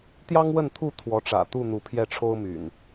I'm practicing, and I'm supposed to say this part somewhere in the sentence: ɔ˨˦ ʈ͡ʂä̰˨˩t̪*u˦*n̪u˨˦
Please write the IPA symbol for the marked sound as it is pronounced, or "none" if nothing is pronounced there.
u˥˨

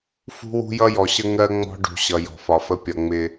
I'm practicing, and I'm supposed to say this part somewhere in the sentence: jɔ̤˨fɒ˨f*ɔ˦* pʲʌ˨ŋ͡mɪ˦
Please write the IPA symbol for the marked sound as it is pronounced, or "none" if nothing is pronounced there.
ə˦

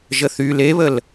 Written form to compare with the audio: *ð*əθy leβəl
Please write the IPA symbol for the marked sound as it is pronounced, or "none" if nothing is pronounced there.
ʒ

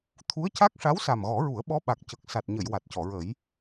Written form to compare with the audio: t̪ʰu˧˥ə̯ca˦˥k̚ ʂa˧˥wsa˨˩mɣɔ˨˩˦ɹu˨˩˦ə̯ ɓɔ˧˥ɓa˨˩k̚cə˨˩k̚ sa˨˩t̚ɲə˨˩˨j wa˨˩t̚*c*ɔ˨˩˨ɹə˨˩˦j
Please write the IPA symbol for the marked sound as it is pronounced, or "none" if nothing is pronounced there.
c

